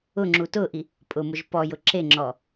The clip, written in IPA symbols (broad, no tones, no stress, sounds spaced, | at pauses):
ʊ ŋ͡ǁ u t ʊ ʔ i | pʼ ʊ m ʊ ʒ p ɔ j ʊ ǁ e ŋ͡ǁ ɔ